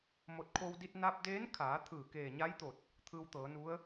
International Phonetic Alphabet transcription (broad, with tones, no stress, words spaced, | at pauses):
mo˧˩t̚kʰo˧wdi˧t̚ na˧p̚deː˧˥nkʰaː˩˧t̪ʰɯː˧˩ keː˧˩ɲa˧˥jt̪o˧˩t̚ | t̪ʰɯː˧wt̪ɤː˩˧nu˧˥ə̯